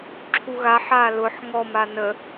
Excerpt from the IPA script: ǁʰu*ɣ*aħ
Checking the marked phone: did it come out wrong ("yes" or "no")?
no